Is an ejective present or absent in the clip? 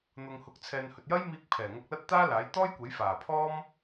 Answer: absent